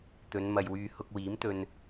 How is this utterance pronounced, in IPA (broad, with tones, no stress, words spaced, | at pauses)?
t̪ɵ˨˧nmɐ˨jwyː˧ hʊ˧k̚wiː˨˥mt̪ɵ˧n